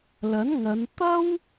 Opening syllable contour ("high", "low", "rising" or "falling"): rising